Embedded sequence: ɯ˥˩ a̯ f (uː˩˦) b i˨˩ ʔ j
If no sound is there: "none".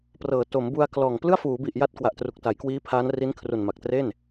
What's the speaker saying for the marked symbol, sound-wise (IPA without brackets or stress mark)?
uː˩˦